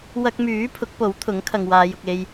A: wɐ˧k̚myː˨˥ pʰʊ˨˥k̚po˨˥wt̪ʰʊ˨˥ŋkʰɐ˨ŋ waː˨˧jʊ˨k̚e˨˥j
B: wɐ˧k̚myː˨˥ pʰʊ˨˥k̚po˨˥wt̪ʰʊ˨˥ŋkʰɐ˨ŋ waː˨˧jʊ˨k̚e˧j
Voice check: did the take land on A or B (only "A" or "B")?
B